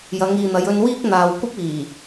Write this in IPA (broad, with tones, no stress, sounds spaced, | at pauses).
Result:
j ɐ˨˧ ŋ iː˨ n̪ ɐ˨˧ j ɵ˧ n w iː˥ k̚ n̪ aː˨ w kʷ ɐ˥ p̚ iː˨˩